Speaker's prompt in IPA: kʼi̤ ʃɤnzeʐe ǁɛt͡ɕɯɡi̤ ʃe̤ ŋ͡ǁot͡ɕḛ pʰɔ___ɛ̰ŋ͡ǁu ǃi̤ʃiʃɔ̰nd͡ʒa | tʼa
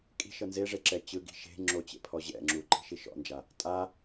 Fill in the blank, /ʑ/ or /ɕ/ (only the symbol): ʑ